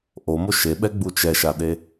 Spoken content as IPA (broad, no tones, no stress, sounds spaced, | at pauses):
ʔ o m o ʃ e ɓ ɛ ɡ͡b u t͡ʃ ɛ ʃ a ɗ e